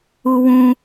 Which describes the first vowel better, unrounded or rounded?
rounded